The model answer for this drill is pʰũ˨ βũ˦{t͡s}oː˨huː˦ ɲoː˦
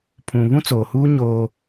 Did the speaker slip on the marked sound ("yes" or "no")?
no